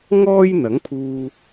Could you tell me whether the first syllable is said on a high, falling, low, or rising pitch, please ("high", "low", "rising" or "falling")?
high